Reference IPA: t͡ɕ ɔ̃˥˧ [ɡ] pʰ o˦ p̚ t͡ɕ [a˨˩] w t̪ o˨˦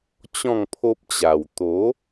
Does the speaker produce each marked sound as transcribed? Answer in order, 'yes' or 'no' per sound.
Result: no, yes

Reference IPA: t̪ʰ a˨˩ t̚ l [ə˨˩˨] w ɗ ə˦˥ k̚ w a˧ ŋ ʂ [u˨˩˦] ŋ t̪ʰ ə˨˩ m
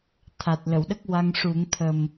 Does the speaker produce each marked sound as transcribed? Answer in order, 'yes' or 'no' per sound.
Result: yes, yes

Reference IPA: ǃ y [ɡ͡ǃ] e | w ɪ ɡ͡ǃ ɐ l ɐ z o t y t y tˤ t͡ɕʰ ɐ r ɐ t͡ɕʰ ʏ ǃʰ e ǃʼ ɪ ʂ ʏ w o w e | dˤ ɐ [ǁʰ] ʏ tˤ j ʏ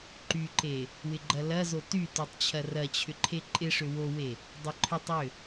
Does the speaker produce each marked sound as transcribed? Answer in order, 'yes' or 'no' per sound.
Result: no, no

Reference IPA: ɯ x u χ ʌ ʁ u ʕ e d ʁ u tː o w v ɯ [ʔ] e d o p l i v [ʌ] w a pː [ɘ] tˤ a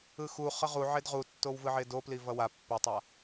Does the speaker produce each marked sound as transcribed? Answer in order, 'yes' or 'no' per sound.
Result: no, yes, no

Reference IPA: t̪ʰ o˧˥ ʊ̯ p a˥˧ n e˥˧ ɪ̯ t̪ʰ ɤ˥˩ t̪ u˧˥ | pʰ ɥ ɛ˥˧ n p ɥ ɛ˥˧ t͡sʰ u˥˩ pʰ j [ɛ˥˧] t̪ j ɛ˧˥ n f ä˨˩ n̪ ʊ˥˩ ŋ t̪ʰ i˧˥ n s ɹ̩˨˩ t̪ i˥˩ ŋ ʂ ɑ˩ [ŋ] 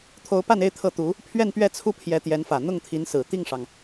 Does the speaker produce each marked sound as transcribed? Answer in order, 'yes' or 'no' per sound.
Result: no, yes

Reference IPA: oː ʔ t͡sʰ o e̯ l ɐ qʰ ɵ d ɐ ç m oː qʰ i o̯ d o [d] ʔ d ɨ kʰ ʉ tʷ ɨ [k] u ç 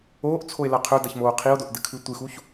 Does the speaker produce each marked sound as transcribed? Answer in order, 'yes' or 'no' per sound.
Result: no, no

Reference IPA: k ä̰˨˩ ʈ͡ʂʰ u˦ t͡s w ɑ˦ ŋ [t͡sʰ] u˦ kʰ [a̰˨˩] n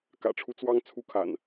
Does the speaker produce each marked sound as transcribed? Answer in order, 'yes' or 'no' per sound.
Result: yes, yes

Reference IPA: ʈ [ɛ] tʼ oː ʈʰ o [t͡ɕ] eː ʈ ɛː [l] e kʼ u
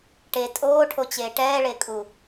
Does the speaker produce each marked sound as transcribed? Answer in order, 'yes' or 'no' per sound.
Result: no, yes, no

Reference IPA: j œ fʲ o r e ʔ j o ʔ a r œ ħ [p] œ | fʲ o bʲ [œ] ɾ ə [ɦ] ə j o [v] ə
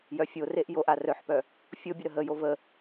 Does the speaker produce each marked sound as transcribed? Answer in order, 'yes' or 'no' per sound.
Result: yes, no, yes, yes

